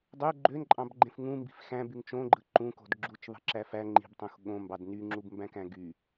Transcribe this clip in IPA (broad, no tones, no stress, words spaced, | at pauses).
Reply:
dˤø ɡ͡ǃønǃʼɑ̃bɡ͡ǃẽf ŋũmbi̤f xæ̃byŋ t͡ʃõɡ͡ǃɯ ǃũko̤d ɡ͡ǁut͡ʃðˤi̤ǁæ fæ ŋ͡ǃi̤btˤũx ɠõmbɑd nyŋ͡ǁubmbæ̃kæ̃ ɡy